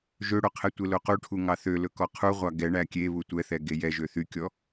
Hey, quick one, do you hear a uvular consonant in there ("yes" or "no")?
yes